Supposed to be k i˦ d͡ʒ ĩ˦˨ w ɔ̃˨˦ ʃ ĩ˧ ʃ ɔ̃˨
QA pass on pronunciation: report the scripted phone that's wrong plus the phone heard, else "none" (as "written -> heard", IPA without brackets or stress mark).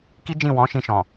none